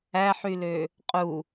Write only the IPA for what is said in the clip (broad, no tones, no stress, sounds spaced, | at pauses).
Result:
æ ħ y l ø | qʼ u